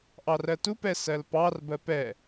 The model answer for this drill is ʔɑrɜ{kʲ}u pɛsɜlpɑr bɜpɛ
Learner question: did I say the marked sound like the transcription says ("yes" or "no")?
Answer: no